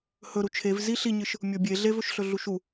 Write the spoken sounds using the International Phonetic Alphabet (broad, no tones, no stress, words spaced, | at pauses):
hɵɾu t͡ʃʰev zi ɬiɲɨʃ | mʲobʲe ɮevɵʃ ɬɵɮuʃu